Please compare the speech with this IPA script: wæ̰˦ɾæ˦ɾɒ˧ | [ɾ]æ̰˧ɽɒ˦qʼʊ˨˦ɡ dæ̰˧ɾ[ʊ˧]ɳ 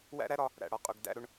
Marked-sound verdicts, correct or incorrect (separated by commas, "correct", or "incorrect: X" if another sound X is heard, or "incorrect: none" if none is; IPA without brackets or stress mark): correct, correct